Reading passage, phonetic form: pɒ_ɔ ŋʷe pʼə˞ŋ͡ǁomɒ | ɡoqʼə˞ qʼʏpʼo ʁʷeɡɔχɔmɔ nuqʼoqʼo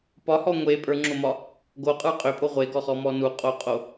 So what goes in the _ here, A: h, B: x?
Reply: A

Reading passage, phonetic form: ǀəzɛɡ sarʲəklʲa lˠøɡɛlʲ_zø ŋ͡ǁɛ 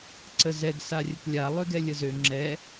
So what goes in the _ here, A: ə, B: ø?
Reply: A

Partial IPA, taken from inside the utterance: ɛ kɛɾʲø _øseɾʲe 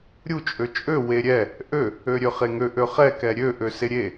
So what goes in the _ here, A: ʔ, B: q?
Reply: A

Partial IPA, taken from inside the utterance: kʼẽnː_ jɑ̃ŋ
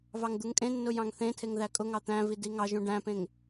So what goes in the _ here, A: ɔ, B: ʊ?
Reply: B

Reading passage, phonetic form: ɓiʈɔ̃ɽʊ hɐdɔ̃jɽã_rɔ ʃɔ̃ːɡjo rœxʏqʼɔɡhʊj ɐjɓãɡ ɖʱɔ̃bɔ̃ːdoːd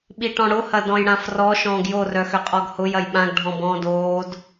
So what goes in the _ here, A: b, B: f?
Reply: B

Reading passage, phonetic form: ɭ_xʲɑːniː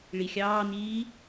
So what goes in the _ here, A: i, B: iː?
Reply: A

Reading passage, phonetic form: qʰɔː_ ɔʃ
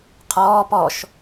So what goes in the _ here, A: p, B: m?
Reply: A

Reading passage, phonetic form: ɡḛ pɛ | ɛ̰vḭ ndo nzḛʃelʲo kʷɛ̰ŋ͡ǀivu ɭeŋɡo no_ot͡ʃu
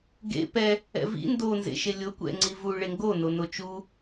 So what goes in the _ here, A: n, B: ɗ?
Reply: A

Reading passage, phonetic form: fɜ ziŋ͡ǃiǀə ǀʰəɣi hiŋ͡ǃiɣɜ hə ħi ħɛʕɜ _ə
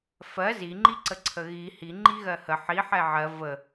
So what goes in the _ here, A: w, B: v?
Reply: B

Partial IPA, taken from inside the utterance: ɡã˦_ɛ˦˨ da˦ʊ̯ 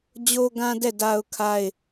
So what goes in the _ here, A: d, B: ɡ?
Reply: A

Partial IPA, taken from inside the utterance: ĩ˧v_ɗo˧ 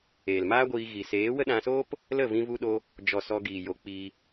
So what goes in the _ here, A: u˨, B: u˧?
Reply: B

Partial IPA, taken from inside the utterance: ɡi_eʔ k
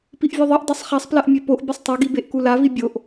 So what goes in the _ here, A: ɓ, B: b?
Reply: B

